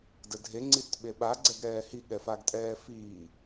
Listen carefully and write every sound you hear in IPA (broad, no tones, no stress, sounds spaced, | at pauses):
d ə dʱ e ŋ͡ǀ i t ɓ e ɓ a ɡ͡ǀ ɛ ɡ ɾ ɛː h i ɠ ɛ f a ɡ tʼ ɛː f iː